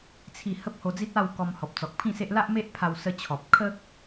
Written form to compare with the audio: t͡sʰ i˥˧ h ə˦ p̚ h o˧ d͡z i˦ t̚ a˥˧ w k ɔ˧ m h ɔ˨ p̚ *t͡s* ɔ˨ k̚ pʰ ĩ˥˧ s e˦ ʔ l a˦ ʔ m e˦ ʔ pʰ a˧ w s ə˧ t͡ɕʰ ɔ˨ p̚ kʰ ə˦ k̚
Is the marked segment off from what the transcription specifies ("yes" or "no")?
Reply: no